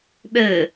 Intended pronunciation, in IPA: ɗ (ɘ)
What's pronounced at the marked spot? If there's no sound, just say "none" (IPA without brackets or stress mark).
ɘ